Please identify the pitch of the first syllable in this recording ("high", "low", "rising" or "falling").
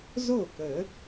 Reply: falling